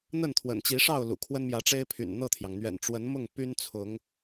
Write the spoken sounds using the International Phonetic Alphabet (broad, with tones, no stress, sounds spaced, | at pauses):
n̪ ə˥˨ n t̪ʰ w ə̰˨˩ n t͡ɕ i˨˦ ʂ ɑ˥˨ ʊ̯ l ṵ˨˩ kʰ w ə˦ n m j ä˨˦ ʈ͡ʂ e˦ ɪ̯ pʰ y̰˨˩ n n̪ ɤ˥˨ t̪ʰ j ɑ˩ ŋ n̪ ɥ ɛ̰˨˩ n ʈ͡ʂ w ə˨˦ n m ʊ˥˨ ŋ p y˦ n t͡sʰ ʊ˨˦ ŋ